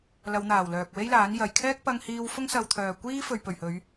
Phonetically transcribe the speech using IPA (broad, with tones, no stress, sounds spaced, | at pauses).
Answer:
l ɐ˨˧ w n̪ aː˨˩ w l œː˨ k̚ w e˥ j l aː˨˥ n j ɐ˨˩ j kʰ ɛː˥ k̚ p ɐ˧ ŋ h iː˧ w f ʊ˥ ŋ s ɐ˧ w t̪ʰ œː˨ kʷ iː˥ f ɵ˨ ɥ p ɵ˨˩ ɥ h ɵ˨˧ ɥ